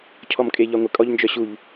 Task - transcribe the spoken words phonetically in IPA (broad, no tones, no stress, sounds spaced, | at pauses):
cʰ ɔ m kʼ e ʎ ɒ ŋʷ ɪ kʼ ɔ ʎ n d͡ʒ œ ɕ u ʎ